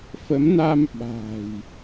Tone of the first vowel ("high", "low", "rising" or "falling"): rising